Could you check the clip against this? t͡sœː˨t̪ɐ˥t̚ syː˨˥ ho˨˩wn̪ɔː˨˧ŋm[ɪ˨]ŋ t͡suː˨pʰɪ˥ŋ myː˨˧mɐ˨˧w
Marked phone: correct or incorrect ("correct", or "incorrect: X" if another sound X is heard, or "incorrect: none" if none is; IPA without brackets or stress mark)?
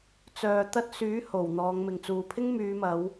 correct